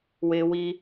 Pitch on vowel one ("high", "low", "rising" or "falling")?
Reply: low